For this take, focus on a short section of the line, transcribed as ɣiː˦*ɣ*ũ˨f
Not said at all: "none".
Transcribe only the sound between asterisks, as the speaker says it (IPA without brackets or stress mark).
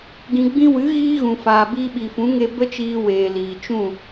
ɣ